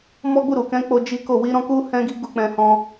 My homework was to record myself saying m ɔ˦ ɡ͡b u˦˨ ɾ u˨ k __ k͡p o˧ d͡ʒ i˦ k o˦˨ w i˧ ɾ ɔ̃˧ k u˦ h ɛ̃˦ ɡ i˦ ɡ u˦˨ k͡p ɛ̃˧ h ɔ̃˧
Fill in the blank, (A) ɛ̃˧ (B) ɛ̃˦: A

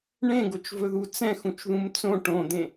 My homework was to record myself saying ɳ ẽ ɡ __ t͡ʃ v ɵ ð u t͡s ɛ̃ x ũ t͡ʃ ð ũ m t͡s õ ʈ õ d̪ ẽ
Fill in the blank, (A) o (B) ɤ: A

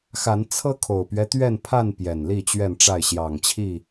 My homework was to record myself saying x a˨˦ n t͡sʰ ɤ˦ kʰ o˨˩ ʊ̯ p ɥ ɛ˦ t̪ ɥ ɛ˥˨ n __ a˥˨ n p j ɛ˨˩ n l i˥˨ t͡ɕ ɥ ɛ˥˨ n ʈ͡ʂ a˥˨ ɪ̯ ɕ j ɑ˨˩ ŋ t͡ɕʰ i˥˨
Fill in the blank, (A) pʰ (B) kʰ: A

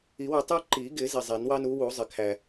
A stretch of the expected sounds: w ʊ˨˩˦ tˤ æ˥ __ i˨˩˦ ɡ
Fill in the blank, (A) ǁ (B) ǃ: B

